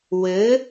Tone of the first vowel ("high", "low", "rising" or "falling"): rising